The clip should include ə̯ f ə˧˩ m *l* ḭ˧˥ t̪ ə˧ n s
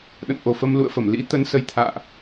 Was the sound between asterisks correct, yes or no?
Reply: yes